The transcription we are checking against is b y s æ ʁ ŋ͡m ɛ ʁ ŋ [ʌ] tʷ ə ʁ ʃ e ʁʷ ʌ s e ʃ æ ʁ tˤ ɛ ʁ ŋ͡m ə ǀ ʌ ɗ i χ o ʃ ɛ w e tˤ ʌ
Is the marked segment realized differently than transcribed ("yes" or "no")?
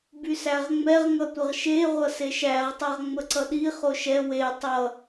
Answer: no